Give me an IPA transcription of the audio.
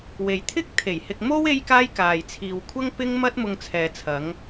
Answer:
w e˨ j t̪ʰ ɪ˥ k̚ t̪ʰ e˨˩ j h ɪ˧ k̚ m o˥ w e˥ j k aː˥ j k aː˨ j t͡sʰ iː˨ w kʷʰ ɐ˥ ŋ p ɪ˥ ŋ m ɐ˥ t̚ m ʊ˧ ŋ t͡sʰ ɛː˨ t͡sʰ ɐ˨˧ ŋ

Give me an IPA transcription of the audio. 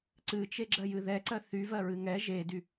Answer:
ǀ ɨ t͡ʃ e ɡ͡ǁ ɜ j ɨ ð ɛ ǀ ɜ θ y v ɜ ɹ ɨ ŋ ɛ ʒ e d y

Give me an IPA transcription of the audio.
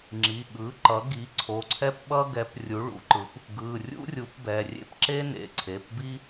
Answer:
ŋ͡ǁ i˩˧˩ ɠ ɯ˩˥ ǃ ʌ˩˥ ɡ i˩˥ ǀʰ o˩˧˩ ǀʰ ɛ˥ p ɓ ʌ˥ ɡ ɛ˩˥ p rʲ u˩˥ ɭ ṵ˩˥ ǃ ɯ˩˥ p | ɡ ɯ˩˧˩ rʲ ṵ˥ rʲ u˩˥ p b ɛ˩˧˩ rʲ ḛ˥ p ǁ e˥ n ḛ˩˧˩ ǀʰ e˩˧˩ p b i˥

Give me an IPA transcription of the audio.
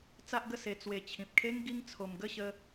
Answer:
t͡s a˦ ʔ ɡ ə˥˧ s e˧ t͡s w e˨˩ t͡ɕʰ ĩ˨ p̚ kʰ e˦ ŋ ɡ i˦ ŋ t͡sʰ o˧ m ɡ ə˥˧ ɕ ə˧

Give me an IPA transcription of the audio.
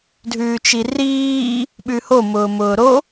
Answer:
dʱ ʉː t͡ʃ i r iː | ɓ ʉ h o m ʊː m ʊː ɾ o

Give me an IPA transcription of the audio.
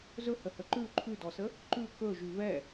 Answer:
z ɵ h ə h ə ǃ ʉ ǃʰ ʉ d ɔ s ə | ǃ ʉ k ɵ ʒ ʉ v ɛ

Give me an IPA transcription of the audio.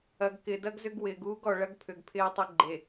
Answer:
ɐ˨ ɡ k ɪ˨ d ɐ˦ ɡ z ʏ˦ ɡ w ɪː˨ ɡ uː˦ ɡ ɔ˨ ɭ ɐ˦ ɡ pʰ ʏ˨ ɡ pʰ ɪː˦ tˤ ɪ˦ ɡ͡ǃ e˨

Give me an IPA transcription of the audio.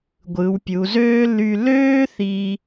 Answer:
ɡʷ ɯ˩˧ w pʲ u˩˧ z øː˥ l y˧ l øː˥ θ i˧

